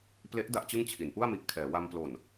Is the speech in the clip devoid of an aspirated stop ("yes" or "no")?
no